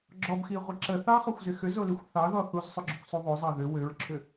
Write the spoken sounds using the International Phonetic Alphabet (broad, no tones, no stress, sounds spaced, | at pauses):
ɡ͡ǁ ɔ b x i ʁʷ ɪ ǁ ə θ ɑ χ ɔ xʷ z ɪ x ʏ z o l i xʷ θ ɑ ð ɔ θ u z sˤ ʏ ɡ͡ǁ ʏ kʷ sˤ u ðˤ o zˤ ɑ ð ʏ w ʏ ɹ ǁʰ ʏ